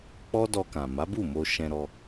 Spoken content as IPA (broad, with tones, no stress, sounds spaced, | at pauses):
k͡p ɔ˦ d ɔ˧ k ã˨ m a˨˦ b u˦˨ m o˧ ʃ ɛ̃˧ ɾ ɔ˧